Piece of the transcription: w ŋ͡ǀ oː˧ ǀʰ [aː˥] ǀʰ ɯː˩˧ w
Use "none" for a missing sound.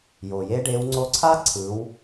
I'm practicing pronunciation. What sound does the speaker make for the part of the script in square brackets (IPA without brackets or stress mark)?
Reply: aː˥